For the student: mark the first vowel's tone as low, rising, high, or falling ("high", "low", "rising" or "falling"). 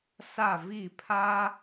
falling